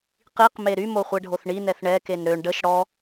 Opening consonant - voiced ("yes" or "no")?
no